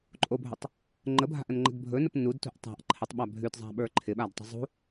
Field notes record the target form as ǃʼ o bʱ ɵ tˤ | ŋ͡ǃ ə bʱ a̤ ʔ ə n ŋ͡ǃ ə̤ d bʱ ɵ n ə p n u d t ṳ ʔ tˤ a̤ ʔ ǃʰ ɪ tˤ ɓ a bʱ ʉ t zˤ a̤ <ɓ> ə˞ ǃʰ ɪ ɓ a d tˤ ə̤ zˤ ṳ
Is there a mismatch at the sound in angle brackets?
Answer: no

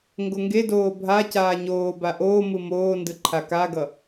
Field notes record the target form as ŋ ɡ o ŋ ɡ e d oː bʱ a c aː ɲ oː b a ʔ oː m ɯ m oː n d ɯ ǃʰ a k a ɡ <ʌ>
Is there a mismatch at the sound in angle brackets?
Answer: no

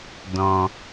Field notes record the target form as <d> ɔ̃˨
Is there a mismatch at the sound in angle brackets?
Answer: no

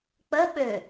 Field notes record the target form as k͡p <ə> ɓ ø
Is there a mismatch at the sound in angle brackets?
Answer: no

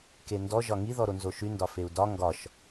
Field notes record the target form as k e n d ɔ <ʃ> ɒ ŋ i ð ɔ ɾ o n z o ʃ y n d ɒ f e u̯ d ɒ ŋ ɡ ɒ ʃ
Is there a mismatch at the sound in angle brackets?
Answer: yes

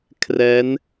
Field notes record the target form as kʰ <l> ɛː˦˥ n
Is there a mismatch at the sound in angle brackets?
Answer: yes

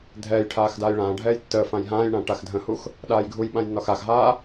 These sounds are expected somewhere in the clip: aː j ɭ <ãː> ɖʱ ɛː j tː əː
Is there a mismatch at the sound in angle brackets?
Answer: no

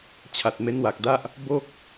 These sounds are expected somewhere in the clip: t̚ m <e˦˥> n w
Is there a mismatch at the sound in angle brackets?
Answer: no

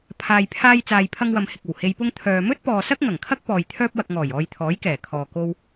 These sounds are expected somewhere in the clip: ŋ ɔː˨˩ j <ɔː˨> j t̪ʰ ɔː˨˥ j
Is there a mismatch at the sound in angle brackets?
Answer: yes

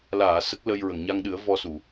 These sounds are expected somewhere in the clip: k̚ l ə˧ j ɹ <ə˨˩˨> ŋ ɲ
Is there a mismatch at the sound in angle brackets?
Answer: no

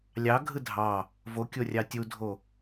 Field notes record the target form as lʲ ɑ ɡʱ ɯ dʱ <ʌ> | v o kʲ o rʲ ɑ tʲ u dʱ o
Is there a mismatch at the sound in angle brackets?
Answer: yes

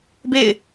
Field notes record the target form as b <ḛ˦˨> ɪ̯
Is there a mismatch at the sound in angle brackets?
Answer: no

